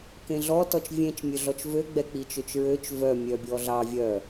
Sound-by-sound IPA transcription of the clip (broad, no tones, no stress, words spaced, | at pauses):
kẽɮɔ tɔt͡ʃvʲẽt͡ʃmʲøɮɔt͡ʃ vøɡ͡bɛk͡pi t͡ʃøt͡ʃɹøt͡ʃ vœmʲœbʲɔ ɮɑ vʲœ